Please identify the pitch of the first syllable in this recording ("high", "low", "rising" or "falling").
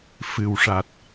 low